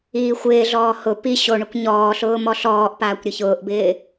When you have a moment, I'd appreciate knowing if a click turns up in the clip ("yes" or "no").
no